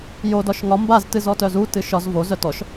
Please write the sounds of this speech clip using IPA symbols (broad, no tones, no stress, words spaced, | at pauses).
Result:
jo dɒʃŋɒ mbaztɨz ɔtœzu tɨʃɒz vo zœtɔʃ